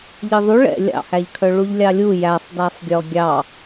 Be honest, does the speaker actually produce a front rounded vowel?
yes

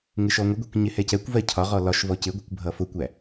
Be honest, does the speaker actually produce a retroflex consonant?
no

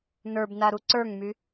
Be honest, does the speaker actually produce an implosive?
no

